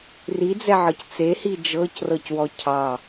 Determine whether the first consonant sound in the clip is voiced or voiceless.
voiced